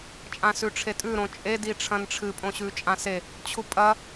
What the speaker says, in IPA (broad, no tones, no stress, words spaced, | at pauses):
t͡ʃʼãsʉʈ͡ʂʰetʼʉ ɾõt͡ʃʼe diʈ͡ʂʰɐ̃nʈ͡ʂʰɨ pʼõɕʉt͡ʃʼãse | t͡ɕʰupʼɐ